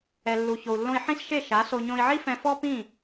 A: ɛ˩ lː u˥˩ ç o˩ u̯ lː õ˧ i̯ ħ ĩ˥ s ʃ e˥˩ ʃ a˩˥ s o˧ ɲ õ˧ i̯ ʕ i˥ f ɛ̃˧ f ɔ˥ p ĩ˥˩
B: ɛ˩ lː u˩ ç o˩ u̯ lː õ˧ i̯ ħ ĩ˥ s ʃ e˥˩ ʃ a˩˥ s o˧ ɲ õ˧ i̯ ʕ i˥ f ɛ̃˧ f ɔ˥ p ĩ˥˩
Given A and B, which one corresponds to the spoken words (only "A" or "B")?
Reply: B